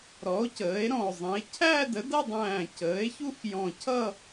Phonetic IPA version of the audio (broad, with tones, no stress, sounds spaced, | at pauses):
ɾ ɔ˩˥ o̯ c əː˩˥ e̯ ɾ ɔ̃˧˩ o̯ zˤ ĩ˩˥ e̯ cʰ æ˥˧ d ə˩˥ d ʌ˥˧ dˤ æ̃ː˧˩ c əː˩˥ e̯ ç u˥˧ x j ɔ̃˧˩ cʰ ʌ˥˧